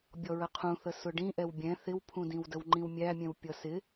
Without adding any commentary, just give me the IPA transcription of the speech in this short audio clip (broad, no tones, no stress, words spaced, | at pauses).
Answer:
bʲɔɹəqʰũθə sʊɖĩ ʔɛwbʲɛ̃ θɪwpʰũdĩw dəwŋ͡ǃĩwmʲæmʲɛ̃w pʲʌsɪ